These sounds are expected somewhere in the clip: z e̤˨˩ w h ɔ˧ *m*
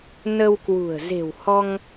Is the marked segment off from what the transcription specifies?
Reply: yes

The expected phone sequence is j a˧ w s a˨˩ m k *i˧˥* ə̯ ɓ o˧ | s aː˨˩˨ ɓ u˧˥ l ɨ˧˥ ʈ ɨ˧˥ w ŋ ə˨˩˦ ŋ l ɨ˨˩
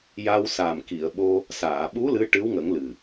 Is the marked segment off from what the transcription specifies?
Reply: yes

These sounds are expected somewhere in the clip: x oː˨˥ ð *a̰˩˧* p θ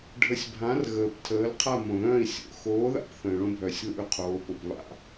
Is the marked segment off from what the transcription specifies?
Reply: yes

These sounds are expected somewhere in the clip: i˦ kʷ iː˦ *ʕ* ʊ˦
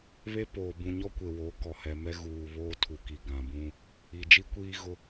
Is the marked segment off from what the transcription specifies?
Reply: yes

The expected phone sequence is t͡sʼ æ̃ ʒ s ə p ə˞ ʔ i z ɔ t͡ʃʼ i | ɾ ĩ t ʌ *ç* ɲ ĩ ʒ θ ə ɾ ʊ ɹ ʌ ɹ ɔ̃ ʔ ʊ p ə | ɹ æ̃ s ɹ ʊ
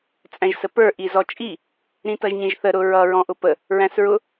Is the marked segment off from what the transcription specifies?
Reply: yes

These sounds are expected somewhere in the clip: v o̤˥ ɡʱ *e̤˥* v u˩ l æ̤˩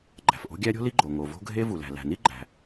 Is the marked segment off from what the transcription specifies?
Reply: yes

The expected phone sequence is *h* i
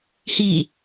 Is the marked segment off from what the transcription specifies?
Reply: no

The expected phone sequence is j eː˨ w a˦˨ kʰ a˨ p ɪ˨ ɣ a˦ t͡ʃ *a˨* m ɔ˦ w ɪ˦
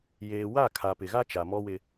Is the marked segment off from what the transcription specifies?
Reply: no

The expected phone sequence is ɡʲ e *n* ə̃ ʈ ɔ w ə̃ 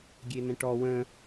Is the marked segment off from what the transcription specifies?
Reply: no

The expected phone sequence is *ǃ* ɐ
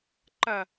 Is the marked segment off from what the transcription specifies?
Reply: no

